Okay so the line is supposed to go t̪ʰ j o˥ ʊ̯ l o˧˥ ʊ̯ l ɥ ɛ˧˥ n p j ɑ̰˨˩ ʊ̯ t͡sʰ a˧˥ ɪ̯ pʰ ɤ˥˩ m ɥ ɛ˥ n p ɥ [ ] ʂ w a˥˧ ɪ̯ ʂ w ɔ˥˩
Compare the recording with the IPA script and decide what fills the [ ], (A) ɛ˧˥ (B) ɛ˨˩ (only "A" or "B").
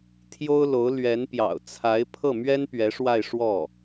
A